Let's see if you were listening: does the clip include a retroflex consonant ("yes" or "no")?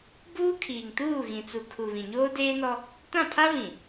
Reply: no